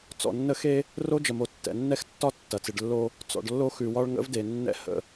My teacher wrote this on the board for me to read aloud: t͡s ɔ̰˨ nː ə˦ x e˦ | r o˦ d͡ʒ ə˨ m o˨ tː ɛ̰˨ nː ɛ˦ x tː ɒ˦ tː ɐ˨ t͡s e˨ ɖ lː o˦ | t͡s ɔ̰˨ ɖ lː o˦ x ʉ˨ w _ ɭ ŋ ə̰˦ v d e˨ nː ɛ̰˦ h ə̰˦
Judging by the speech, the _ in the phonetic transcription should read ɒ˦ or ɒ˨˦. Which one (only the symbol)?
ɒ˦